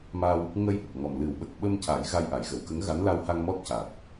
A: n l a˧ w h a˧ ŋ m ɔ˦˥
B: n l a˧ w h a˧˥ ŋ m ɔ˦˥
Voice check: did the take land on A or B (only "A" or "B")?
A